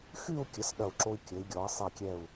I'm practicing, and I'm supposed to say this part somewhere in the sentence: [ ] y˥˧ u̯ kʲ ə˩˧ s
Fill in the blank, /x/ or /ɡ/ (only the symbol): x